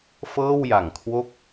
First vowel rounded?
no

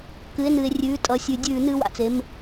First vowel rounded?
no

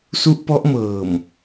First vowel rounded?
yes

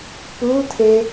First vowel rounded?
yes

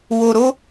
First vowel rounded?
yes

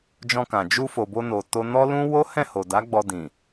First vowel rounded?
yes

